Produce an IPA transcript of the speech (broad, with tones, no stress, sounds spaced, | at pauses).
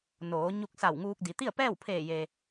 n oː˩˧ ɲ u˧ k̚ s a˧˩ w ŋ uː˧ k̚ d i˩˧ t̪ i˥˨ ə̯ p ɛː˥˨ w pʰ eː˧˩ j e˩